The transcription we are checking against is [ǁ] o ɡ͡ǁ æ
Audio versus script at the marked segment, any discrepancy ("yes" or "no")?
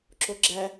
no